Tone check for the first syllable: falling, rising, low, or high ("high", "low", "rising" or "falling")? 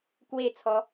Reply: falling